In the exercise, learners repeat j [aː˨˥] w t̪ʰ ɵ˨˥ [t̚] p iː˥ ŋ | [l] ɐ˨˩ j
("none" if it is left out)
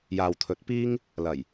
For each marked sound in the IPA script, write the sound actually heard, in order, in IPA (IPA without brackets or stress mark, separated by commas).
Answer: aː˨, t̚, l